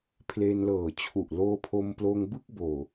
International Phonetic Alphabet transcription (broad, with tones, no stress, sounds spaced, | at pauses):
pʰ l e˧ n l ɤː˨˩ t͡ɕʰ u˨˩ ʔ l oː˧ pʰ o˧ m p l oː˧ ŋ b ɯ˥˩ k̚ b oː˨˩